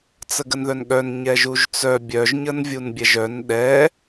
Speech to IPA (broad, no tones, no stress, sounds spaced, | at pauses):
t͡s ə ɡ ə n ð œ n ɠ œ n ɲ ɛ ʒ u ʒ t͡s œ bʲ œ ʒ ɲ ə n vʲ u n bʲ ɛ ʒ œ n ɗ ɛ